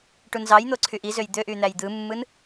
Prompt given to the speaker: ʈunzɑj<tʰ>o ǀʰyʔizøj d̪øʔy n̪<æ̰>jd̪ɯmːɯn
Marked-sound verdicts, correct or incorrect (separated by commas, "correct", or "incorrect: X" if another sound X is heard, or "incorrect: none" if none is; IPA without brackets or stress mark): incorrect: n̪, incorrect: æ